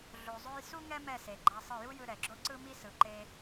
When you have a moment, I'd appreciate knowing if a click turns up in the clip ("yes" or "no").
yes